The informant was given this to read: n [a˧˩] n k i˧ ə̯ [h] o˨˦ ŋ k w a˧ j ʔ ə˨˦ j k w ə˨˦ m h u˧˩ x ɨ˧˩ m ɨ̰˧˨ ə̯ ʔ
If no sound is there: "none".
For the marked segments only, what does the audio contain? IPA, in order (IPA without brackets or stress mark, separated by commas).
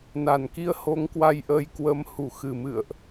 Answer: a˧˩, h